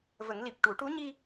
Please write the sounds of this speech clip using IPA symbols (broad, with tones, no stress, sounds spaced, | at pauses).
v ə˨˩˦ ŋ l i˨˩ p̚ ʈ u˨˩˦ ʈ u˧˥ ɲ i˧